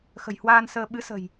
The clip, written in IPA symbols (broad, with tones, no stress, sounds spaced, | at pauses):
x ə̤˨˩ j h w aː˧ n s əː˧ ɓ ɨ˨˦ s ə̤˨˩ j